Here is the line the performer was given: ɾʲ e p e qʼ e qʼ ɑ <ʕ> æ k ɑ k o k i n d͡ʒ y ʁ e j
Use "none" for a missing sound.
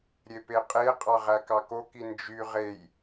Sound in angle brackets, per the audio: ʁ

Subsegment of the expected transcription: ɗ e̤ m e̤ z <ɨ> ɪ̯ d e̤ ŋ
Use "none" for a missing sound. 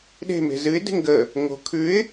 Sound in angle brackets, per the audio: ɨ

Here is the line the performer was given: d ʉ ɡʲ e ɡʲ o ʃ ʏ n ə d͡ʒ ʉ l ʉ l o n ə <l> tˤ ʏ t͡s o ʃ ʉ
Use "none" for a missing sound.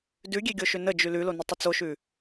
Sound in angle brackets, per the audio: none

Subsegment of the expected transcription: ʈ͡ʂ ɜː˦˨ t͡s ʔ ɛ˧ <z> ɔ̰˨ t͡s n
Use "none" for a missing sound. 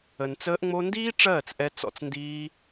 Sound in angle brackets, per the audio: t͡s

